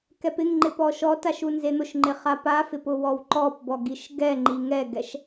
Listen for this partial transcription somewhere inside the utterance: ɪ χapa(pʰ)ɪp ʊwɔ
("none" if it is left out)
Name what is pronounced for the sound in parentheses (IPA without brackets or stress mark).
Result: f